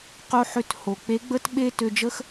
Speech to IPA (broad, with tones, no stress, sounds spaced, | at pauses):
q o˧ ħ ø˧ t h o˩ k͡p e˧˥ ɡ͡b ə˥ t ɓ e˥ t ø˧ d͡ʒ ə˥ x